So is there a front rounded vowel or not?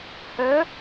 yes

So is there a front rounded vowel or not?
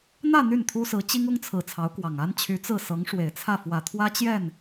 yes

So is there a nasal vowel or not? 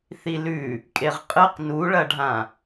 yes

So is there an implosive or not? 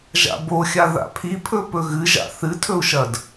no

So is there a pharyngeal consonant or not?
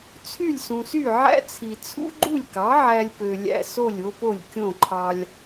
yes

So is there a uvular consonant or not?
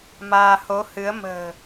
no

